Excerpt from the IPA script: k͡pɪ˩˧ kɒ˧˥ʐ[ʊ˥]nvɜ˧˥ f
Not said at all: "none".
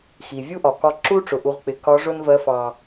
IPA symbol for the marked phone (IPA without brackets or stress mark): ʊ˥